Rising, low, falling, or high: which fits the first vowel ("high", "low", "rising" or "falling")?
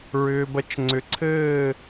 low